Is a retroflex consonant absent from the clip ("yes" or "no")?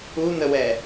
yes